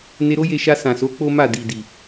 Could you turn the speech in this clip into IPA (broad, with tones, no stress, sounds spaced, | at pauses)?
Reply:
n e˧ ɾ o˦ j e˧ ʃ a˧ s ã˨ s o˨˦ k͡p o˦ m a˦˨ d i˨ d i˨